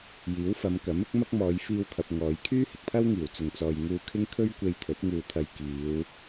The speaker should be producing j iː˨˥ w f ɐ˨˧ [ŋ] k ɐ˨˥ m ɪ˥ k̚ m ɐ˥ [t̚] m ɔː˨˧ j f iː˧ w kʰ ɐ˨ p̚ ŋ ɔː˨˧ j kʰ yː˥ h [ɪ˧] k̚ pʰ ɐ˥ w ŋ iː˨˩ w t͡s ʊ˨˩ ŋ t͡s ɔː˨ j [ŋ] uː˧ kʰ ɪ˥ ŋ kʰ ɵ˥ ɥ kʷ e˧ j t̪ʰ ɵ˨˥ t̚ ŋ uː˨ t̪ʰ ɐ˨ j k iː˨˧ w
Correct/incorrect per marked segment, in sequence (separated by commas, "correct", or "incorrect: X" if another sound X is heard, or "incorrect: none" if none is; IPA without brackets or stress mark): incorrect: m, incorrect: k̚, incorrect: ɪ˨, correct